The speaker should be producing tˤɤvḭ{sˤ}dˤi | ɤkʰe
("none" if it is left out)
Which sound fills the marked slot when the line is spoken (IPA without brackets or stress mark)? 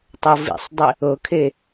sˤ